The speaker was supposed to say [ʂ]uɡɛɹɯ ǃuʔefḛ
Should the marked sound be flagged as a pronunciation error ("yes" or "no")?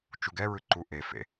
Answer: yes